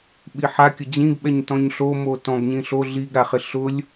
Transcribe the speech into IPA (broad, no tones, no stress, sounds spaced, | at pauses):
ɓ i ħ a kʲ ʊ d͡ʑ ĩ ɡ ɓ ɛ ɲ t ɔ̃ ɲ ɬ o m o t ɔ̃ ɡ ɲ ĩ ɬ o ɮ i ɡ ɾ a χ ɪ ɬ ʊ lʲ